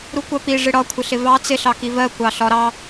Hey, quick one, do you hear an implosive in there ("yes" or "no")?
no